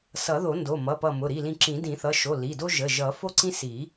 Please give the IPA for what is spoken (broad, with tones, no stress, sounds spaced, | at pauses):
s ʌ˨˩˦ ð o˨˩˦ n d o˩˧˩ m ʌ˩˧˩ p ʌ˧˩ m ʊ˩˧˩ ɾ i˩˧˩ l ĩ˧˩ ǁ ĩ˨˩˦ d ĩ˨˩˦ θ ʌ˩˧˩ ʃ o˩˧˩ l i˩˧˩ d o˦ ʒ ə˩˧˩ ʒ ʌ˨˩˦ f o˦ ǀ ĩ˦ s i˨˩˦